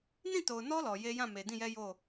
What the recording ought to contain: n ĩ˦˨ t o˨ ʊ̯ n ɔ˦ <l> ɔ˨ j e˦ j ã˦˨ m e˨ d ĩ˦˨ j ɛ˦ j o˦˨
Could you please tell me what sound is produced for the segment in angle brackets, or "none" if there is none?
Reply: l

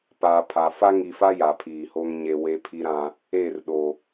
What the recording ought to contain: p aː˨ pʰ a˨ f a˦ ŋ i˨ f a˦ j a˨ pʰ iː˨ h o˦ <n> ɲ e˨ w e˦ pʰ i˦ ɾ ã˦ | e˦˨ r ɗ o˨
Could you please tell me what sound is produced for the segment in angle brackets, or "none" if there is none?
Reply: ŋ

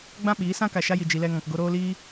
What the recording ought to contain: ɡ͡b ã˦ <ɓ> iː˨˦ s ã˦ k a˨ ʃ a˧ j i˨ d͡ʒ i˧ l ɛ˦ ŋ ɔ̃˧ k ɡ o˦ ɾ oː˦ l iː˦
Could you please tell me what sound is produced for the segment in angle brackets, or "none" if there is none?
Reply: ɓ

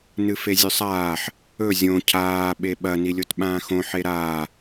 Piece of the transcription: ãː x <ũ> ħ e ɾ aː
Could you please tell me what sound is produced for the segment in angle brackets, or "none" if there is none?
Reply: õ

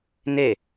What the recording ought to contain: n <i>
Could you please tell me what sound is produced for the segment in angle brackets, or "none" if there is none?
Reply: e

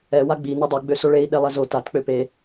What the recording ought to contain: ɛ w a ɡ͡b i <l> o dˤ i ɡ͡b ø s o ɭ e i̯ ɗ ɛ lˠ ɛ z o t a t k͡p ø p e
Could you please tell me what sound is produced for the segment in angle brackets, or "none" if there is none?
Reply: n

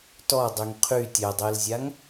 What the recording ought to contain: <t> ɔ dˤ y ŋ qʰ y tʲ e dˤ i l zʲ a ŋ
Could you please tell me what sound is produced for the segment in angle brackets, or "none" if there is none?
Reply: t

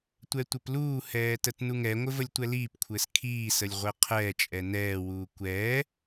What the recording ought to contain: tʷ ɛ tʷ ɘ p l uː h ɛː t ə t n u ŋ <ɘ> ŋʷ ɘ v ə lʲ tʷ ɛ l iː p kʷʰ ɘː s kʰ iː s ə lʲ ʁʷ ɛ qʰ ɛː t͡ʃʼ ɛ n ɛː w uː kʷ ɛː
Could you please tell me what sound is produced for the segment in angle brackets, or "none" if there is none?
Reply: ɛ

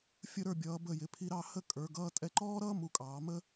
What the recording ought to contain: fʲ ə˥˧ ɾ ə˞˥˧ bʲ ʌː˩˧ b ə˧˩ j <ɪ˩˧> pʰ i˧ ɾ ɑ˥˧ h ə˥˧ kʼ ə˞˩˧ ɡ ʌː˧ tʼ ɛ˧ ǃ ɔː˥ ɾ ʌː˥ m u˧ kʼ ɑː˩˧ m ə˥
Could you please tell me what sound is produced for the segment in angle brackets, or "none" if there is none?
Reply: ɪ˩˧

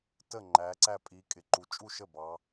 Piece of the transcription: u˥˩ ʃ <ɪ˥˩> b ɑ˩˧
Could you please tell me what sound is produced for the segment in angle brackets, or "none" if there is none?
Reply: ə˥˩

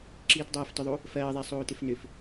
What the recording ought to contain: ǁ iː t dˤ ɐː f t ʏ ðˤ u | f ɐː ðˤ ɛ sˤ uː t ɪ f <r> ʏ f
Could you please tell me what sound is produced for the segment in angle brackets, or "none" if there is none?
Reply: n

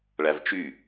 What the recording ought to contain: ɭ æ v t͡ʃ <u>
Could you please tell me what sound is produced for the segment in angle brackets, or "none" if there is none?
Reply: y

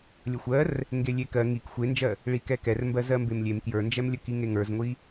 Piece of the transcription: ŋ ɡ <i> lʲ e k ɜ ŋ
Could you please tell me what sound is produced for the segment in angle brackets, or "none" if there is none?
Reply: e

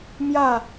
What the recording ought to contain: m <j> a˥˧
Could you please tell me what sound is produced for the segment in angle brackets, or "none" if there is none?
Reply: j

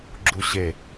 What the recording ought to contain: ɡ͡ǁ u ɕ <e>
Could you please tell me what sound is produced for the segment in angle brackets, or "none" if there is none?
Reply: e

